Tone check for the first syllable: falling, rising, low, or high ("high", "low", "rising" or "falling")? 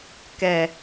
low